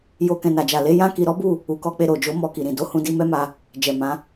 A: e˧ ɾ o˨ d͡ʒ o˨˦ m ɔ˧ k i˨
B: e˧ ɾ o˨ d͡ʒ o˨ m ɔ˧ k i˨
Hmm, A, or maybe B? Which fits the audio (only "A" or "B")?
A